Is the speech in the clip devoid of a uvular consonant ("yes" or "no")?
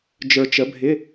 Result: yes